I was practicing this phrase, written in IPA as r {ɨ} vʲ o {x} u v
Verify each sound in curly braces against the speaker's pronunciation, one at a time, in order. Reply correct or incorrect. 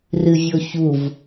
correct, incorrect

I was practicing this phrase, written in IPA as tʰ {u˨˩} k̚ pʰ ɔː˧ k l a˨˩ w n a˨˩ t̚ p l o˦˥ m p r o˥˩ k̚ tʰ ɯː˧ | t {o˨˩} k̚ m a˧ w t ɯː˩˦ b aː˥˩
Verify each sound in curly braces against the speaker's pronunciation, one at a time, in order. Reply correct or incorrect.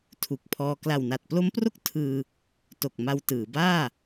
correct, correct

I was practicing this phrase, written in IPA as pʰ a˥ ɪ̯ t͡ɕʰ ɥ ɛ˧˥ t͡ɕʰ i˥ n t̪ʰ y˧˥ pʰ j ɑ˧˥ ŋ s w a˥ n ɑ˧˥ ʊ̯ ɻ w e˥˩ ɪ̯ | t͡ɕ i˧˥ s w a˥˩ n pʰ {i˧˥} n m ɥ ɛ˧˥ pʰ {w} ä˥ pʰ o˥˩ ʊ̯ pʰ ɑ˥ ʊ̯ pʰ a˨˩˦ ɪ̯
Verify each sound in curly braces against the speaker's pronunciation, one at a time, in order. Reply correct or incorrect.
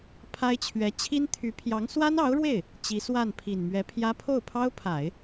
incorrect, incorrect

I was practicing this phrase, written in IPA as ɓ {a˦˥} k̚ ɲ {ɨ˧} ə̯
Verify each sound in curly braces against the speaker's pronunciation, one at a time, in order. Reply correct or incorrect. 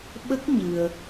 incorrect, correct

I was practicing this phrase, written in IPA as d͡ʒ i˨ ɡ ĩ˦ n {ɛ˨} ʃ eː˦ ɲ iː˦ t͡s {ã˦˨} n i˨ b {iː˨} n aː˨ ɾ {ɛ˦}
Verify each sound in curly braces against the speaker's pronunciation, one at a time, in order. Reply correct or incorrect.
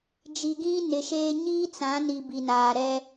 incorrect, incorrect, incorrect, correct

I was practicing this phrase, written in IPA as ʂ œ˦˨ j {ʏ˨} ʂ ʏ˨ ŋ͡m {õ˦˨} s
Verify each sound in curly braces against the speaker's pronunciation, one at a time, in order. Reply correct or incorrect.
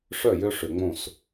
incorrect, correct

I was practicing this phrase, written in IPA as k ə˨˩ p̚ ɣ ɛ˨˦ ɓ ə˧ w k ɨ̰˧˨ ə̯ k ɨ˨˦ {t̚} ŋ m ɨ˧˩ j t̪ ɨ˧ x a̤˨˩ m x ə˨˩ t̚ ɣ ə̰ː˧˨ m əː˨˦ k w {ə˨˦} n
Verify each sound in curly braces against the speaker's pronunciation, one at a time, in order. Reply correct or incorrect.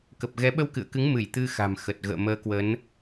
incorrect, correct

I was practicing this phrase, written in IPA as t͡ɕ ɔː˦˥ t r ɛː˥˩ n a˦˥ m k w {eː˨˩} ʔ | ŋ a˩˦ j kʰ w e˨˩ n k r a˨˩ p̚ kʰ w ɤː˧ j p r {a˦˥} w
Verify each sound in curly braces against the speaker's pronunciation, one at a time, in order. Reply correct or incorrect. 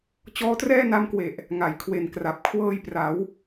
incorrect, incorrect

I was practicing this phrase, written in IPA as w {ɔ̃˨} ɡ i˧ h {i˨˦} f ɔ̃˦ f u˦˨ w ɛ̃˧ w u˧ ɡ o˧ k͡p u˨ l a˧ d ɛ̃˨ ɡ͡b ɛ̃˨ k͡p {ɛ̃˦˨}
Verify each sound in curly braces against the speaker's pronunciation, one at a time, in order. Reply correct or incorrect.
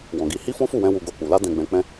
correct, incorrect, incorrect

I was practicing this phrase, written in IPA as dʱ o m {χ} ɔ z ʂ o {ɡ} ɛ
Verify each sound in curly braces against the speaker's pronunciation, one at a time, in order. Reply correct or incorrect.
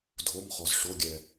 correct, incorrect

